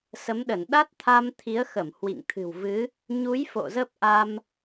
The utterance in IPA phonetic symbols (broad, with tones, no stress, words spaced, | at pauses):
sə˨˦mɗə˧˩n ɗa˦˥t̚t̪ʰa˧mt̪ʰi˨˦ə̯ xə˧˩m hwḭ˧˨ŋt̪ʰɨ̤˨˩w vɨ˨˦ | ɲu˨˦j fo̰˧˨zə˦˥p̚ʔa˧m